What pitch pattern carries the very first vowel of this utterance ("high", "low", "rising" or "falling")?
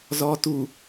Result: low